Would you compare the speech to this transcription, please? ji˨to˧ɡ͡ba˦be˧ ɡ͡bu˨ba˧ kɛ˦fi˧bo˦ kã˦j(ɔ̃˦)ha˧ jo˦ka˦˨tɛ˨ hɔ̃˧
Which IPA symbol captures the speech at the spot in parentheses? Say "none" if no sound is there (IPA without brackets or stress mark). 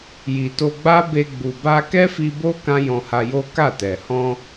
ɔ̃˧